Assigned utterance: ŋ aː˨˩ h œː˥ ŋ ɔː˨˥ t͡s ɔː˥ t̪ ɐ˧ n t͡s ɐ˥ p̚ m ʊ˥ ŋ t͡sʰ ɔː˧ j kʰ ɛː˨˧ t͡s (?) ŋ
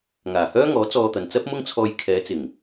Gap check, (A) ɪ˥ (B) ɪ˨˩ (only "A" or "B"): B